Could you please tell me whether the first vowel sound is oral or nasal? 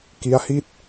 oral